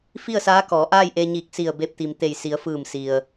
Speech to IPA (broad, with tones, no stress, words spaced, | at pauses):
fi˥˨ə̯saː˧˥kɔː˩˧ ʔaː˥˨jʔe˧ɲiː˧˩k̚si˧˩ə̯ be˧p̚t̪i˩mt̪e˧˩jsi˩˧ə̯ fɯː˧˩msi˩ə̯